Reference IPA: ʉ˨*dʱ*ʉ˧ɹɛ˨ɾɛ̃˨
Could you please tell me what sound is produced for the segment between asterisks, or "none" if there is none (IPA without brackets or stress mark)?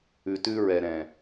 t